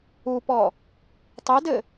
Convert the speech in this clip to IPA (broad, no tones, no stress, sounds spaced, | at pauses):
u p ɔ | tˤ e d ɘ